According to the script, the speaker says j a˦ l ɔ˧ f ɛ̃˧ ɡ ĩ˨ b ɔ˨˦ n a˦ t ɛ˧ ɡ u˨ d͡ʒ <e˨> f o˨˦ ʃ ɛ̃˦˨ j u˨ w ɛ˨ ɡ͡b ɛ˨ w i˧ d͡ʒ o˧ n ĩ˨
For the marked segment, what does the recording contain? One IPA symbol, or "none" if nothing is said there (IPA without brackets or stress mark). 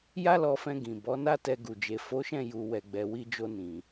e˨